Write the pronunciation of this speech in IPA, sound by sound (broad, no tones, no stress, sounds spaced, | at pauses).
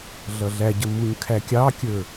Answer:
ɮ ʌ ɮ æ ɟ ə m u ɲ kʰ æ kʲ ɑ kʲ ə˞